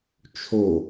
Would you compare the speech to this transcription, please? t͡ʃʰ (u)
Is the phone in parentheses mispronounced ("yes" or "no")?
yes